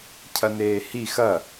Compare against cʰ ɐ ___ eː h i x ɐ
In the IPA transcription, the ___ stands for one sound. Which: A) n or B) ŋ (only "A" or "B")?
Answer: A